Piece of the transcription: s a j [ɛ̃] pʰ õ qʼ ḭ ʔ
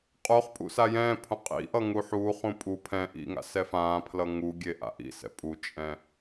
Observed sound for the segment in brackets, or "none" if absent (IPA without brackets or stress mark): ɛ̃ː